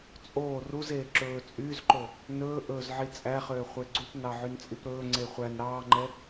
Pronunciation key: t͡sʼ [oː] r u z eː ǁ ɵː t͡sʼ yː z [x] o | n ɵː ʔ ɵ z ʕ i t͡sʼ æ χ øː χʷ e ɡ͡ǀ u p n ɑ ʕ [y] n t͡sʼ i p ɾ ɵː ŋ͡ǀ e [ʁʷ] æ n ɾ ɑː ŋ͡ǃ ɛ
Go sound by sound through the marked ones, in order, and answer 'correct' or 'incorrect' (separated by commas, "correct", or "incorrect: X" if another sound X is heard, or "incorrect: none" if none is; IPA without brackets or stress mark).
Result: correct, incorrect: ǃ, correct, incorrect: χʷ